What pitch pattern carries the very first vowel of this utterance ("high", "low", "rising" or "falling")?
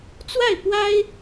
falling